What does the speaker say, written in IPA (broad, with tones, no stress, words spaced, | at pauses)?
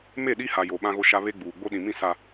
me˦˨ɗi˦ha˨ jo˨ɓã˦ɣo˦ʃa˦ βe˦ɡ͡buː˨ ɡ͡bo˦ɗĩ˨mĩ˦˨ sa˨